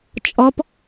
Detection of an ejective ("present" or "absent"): present